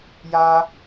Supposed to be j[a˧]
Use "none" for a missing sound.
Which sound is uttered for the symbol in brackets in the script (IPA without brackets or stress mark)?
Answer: a˧